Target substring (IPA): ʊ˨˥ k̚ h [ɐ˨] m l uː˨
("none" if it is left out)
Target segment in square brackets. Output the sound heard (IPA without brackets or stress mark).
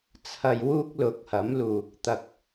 ɐ˨˥